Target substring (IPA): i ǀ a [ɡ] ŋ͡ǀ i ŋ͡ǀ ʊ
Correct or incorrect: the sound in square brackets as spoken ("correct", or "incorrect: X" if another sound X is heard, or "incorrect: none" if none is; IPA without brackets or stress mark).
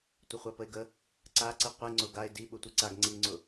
correct